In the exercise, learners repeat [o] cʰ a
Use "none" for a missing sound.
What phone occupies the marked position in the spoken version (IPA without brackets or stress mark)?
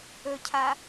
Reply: ɵ